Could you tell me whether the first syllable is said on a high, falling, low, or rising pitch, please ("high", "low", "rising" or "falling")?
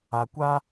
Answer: low